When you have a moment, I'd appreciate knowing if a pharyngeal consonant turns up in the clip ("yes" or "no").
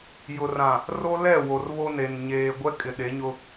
no